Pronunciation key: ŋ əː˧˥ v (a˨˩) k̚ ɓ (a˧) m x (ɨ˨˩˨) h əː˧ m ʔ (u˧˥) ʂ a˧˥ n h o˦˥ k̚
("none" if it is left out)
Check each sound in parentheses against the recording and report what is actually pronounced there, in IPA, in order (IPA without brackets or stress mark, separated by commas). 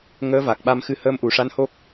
a˨˩, a˧, ɨ˧, u˨˩˨